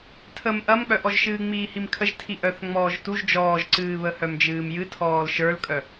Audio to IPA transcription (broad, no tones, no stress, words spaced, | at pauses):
tʰəm ʔɐmk͡pœʔɔʒʃɨː ŋ͡miːhimkʰəʒ tʰiʔœθ ŋ͡mɔːʒtuʒ d͡ʒɔːʒǀɨːβə hœmd͡ʒɨːmjɨtʰɔːl ʃə˞lkʼœ